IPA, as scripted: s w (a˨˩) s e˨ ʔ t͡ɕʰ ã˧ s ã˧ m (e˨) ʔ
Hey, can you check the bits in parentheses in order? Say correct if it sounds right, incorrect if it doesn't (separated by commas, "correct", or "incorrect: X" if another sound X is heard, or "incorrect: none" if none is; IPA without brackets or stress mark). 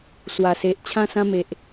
correct, correct